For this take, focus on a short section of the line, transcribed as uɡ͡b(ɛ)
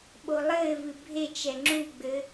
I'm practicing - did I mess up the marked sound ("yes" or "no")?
yes